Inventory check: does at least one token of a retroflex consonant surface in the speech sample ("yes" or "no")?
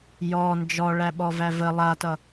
yes